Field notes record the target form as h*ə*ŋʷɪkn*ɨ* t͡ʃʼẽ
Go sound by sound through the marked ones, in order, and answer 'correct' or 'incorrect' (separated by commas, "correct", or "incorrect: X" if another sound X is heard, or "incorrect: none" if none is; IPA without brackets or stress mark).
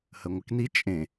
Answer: correct, incorrect: i